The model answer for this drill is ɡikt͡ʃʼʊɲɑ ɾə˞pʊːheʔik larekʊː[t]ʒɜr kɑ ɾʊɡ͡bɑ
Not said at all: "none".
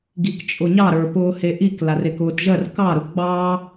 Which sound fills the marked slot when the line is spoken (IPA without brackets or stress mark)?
t